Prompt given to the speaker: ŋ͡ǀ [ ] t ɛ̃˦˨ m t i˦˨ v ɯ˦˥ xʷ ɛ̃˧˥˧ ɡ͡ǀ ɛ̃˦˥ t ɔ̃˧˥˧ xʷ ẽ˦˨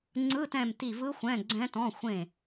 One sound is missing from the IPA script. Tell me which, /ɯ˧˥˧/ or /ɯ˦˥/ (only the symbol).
ɯ˧˥˧